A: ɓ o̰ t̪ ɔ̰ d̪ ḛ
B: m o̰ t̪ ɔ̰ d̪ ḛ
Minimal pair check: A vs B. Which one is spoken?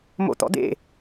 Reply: B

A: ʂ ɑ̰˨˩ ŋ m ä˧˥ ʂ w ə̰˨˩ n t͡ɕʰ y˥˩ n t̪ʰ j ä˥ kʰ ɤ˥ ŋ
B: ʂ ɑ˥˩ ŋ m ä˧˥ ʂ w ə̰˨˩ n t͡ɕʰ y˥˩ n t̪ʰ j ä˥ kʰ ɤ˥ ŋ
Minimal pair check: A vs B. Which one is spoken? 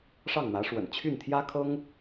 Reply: B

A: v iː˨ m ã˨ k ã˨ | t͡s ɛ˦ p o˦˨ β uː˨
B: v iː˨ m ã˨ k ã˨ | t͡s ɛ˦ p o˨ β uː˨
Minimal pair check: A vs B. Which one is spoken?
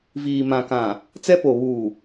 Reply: B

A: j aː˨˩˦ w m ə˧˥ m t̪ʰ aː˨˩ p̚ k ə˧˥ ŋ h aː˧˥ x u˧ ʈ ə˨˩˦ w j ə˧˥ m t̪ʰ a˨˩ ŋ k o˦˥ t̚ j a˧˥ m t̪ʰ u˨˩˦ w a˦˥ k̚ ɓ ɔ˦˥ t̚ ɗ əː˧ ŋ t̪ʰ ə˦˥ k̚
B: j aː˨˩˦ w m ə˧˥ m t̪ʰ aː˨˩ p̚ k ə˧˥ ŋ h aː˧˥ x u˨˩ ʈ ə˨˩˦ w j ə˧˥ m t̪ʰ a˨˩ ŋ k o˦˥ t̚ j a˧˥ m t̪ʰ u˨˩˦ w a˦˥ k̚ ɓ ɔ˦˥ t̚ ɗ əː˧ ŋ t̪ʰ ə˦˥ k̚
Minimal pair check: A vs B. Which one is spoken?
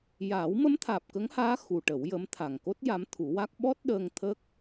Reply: B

